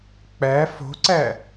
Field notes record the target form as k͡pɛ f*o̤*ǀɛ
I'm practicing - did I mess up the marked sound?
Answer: no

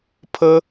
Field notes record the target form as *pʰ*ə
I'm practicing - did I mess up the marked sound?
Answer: no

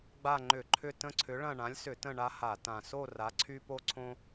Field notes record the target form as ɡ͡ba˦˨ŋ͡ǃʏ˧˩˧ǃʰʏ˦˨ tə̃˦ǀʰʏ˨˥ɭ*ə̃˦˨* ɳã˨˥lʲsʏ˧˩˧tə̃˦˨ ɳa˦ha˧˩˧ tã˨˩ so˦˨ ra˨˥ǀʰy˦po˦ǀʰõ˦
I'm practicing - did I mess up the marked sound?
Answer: yes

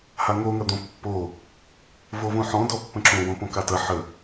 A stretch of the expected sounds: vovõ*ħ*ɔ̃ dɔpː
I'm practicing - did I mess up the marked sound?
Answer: no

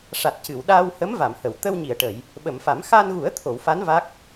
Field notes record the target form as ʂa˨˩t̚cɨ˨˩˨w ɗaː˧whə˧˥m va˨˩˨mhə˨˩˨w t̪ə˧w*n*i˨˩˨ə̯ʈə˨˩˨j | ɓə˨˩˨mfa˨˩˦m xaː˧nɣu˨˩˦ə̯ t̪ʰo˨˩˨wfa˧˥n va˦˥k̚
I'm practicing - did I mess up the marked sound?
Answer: yes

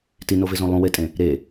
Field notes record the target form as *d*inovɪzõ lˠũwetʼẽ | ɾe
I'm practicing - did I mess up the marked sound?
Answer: yes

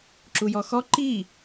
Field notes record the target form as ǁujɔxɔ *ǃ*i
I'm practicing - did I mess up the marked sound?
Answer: no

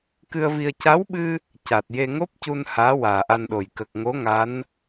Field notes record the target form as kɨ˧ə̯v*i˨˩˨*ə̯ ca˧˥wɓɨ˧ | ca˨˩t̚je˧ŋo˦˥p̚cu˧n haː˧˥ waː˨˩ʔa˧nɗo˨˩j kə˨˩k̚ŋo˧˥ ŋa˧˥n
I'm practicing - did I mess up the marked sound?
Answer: yes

